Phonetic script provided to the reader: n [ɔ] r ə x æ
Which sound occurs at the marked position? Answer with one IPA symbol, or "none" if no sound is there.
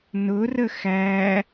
ʊ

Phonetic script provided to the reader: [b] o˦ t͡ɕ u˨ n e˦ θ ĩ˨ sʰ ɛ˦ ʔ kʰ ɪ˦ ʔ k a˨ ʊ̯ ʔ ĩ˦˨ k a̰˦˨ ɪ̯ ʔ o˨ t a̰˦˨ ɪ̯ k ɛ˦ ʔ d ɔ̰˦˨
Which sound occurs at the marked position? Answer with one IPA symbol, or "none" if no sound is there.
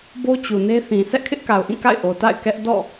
b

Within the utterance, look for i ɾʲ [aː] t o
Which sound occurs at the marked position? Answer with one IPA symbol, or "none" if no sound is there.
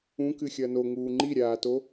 aː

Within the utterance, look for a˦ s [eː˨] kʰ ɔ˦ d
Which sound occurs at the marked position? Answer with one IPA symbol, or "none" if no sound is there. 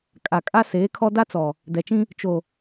eː˨˦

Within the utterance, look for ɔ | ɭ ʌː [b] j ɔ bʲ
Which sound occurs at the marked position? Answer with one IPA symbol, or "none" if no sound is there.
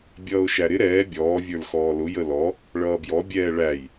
b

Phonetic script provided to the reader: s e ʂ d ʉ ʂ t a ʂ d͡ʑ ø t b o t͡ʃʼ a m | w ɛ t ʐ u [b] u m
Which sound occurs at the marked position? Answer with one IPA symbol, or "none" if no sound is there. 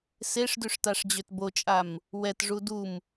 d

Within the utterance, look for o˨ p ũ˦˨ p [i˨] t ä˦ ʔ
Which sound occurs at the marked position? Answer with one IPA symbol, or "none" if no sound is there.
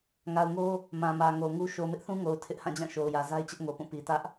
i˨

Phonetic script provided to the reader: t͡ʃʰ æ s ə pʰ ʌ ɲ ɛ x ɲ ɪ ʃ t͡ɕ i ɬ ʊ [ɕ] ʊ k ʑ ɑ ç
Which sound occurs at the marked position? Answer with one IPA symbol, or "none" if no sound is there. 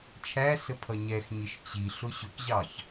ɕ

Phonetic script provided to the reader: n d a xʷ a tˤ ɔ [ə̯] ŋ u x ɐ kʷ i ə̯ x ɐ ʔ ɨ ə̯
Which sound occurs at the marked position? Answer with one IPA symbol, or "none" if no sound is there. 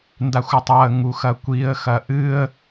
ə̯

